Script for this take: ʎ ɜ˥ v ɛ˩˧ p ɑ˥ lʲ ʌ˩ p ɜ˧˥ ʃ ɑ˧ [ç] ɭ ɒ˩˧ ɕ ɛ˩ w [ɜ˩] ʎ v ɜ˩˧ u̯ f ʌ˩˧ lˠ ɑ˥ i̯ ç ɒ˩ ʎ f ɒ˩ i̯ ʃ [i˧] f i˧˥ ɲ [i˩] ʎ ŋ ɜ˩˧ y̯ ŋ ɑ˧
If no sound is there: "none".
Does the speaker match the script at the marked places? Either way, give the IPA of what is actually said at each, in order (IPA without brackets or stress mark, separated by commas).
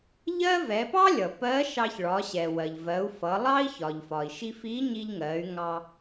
ç, ɜ˩, i˧, i˧